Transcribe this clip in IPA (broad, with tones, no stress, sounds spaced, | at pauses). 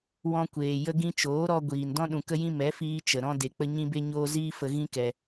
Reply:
w ɔ̃˧ kʷ eː˨ j ə˧ ɡ ĩ˧ t͡ʃ oː˨˦ ɾ ɔ˧ ɡʷ iː˨ n d ɔ̃˧ ɗ ũ˨ k ə˧ j ĩ˧ m ɛ˨˦ f iː˧ t͡ʃ ə˨ ɾ ɔ̃˧ d e˨ k͡p ə˧ ɲ ĩ˧ b e˧ ɲ oː˧ z iː˦ f ə˧ ɣ ĩ˦ k ɛ˧